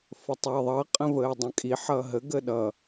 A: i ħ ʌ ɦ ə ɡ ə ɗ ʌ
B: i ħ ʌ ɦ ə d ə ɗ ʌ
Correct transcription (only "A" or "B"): A